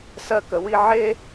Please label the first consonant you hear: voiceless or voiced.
voiceless